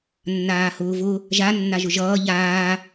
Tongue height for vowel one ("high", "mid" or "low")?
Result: low